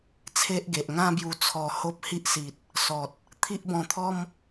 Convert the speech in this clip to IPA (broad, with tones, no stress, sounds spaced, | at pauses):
t͡sʰ e˦ ʔ ɡ e˨ ʔ ŋ ã˦ b j u˧ t͡sʰ ɔ˧ h o˦ p̚ h i˦ ʔ s i˨ t̚ | s ɔ˨ t̚ | t̪ʰ i˦ ʔ b ɔ̃˧ t̪ʰ ɔ˦ m